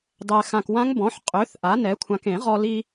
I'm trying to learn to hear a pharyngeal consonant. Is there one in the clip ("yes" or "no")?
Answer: yes